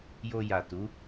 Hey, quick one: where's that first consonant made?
palate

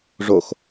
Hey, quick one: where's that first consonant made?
retroflex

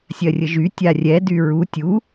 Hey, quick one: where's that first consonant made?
tongue tip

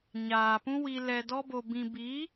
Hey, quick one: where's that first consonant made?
palate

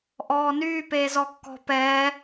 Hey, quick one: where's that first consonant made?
throat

